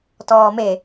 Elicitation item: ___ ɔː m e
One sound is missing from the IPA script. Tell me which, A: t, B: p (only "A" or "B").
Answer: A